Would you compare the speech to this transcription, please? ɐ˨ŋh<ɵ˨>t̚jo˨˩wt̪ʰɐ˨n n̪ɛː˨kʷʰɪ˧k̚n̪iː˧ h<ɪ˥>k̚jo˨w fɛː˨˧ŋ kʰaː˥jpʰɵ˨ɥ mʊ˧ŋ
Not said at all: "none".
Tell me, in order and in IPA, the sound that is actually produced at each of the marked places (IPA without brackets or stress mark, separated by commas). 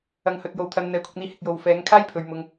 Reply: ɵ˨, ɪ˨